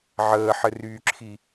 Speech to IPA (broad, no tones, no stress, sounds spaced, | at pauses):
ʕ əː ħ ɘ r yː ǁʰ i